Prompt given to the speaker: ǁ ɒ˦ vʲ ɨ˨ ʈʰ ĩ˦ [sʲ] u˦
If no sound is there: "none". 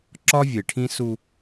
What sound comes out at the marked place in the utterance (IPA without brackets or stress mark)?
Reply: s